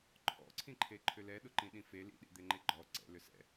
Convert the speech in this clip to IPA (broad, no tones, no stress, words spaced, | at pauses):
ǃʰɔ̰ǀʰĩǃʰe ǃʰʏlɛ ɗʊǃĩɗĩfe lḭɗḭd̪eŋ͡ǃe ɡ͡ǃɔ ǀɛ̰ lʏsɛ̰